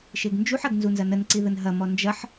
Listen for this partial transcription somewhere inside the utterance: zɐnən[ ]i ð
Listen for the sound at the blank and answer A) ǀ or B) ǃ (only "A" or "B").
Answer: A